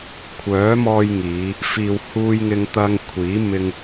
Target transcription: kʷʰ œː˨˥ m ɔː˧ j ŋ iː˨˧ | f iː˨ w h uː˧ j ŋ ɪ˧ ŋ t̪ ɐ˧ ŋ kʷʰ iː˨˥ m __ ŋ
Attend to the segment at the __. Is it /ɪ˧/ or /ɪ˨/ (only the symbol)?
ɪ˧